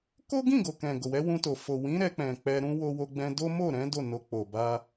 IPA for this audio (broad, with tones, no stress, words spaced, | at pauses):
ko˦ɡĩ˦˨ ɡo˨kɛ̃˨ ɡo˨wɛ˨˦wũ˧to˨ fo˨ wĩ˨˦ ɾɛ˧k͡pɛ̃˨ k͡pɛ˧ɾũ˦ wo˧wo˧ɡ͡bɛ̃˧do˦ mo˦˨ɾɛ̃˨˦ do˦˨no˧k͡po˨ ba˧